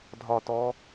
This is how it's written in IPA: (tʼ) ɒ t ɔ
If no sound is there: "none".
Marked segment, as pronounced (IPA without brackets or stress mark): dʱ